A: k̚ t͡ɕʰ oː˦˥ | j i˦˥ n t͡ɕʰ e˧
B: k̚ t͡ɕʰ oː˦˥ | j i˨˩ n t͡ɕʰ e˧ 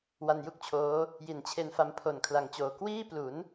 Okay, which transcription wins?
B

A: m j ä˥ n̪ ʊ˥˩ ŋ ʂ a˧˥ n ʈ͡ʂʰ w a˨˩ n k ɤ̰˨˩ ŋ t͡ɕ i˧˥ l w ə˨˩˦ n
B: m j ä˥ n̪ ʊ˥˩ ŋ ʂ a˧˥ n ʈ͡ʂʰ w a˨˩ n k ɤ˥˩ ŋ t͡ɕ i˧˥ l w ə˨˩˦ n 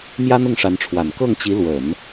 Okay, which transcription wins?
B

